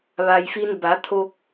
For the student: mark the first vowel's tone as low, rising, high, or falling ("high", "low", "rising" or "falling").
low